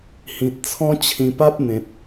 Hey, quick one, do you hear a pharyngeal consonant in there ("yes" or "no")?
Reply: no